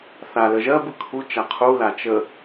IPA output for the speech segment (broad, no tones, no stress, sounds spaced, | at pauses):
θ a l ə ʒ ɜ b ɯ kʰ u t͡ʃ a qʰ u l a t͡ʃ ə